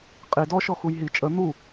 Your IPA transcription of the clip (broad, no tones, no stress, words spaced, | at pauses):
qʼi dɔ ʃɔxujɦi t͡ʃʼə n̪u